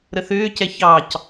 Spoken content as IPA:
ɾ ə θ ʏː c ɛ ç ɑ c

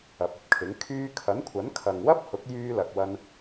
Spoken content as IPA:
ɐ˨ p̚ ɐ˨˥ p̚ kʰ ɪ˨˥ ŋ kʰ yː˧ kʰ ɐ˨˥ n kʷʰ ɐ˨˥ n kʰ ɐ˨ ŋ w ɐ˥ p̚ h ʊ˨˥ k̚ j yː˧ l ɐ˨ k̚ w ɐ˧ n

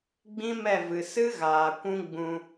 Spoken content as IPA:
ɡ͡b ĩ˦ m ɛ˦˨ v ɨ˨ s ɨ˦ ɣ aː˨ kʷ ũ˦ ɡ͡b ũ˧

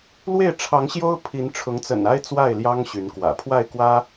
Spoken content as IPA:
l w e˥˨ ɪ̯ ʈ͡ʂʰ ɑ˨˦ ŋ ɕ j o˦ ʊ̯ pʰ i˨˦ n ʈ͡ʂʰ ʊ˨˦ ŋ t͡s ə̰˨˩ n a˦ ɪ̯ t͡s w a˥˨ ɪ̯ l j ɑ˦ ŋ ɕ y˨˦ n k w ä̰˨˩ pʰ w a˥˨ ɪ̯ k w ä˦

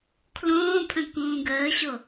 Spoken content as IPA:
kʰ l õː pʰ ə̃ k ũː ɡ əː ɕ o

